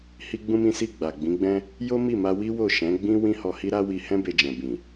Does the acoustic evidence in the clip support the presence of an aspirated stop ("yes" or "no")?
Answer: no